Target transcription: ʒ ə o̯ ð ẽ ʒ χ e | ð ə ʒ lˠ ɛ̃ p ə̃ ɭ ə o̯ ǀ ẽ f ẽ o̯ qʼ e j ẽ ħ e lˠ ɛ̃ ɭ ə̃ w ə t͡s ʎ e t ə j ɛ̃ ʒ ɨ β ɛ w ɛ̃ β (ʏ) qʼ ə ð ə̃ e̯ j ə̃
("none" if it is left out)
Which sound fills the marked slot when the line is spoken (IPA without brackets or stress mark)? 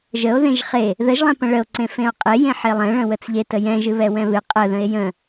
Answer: ɨ